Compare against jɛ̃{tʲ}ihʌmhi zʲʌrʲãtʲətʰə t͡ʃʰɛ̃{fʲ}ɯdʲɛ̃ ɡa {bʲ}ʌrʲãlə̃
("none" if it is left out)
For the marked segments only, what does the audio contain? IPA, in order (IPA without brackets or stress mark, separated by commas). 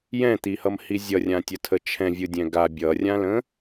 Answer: t̪, vʲ, bʲ